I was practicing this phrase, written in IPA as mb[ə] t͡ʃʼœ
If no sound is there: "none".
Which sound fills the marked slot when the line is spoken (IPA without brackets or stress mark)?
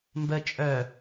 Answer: ə